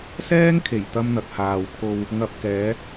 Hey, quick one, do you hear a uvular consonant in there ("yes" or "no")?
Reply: no